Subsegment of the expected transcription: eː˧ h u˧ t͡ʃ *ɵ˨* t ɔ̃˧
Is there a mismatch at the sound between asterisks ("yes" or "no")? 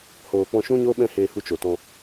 yes